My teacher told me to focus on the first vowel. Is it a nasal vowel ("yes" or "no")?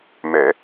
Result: no